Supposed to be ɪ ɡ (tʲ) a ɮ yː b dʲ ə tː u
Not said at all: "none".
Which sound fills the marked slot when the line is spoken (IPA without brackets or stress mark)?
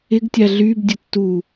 tʲ